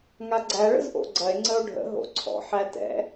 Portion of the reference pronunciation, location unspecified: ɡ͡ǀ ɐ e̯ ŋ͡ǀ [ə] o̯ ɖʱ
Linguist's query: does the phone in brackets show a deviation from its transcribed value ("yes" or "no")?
no